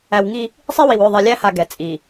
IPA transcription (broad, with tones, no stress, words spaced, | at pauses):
æ˨w ŋi˦ | sˤi˦wi˨w ʏ˦˨ ðˤi˨lʲæ˦ha˨ ɡɛ˨t͡sʼi˨